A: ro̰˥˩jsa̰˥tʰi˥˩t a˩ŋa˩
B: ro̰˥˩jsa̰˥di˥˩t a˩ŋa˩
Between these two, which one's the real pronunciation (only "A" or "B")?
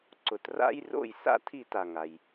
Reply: A